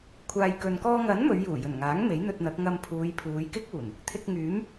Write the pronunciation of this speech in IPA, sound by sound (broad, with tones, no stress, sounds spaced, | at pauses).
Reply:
kʷʰ aː˧ j k ɵ˧ n k ɔː˧ ŋ ɐ˨˥ n m ɵ˨˧ ɥ j uː˨˩ j ɵ˨˩ n ŋ aː˨˥ ŋ m e˨˥ j n̪ ɵ˧ t̚ n̪ ɐ˨˥ k̚ ŋ ɐ˧ m pʰ uː˨˧ j pʰ uː˨˧ j k ɪ˥ k̚ uː˨˩ n | t̪ʰ ɪ˧ k̚ ŋ yː˨˥ m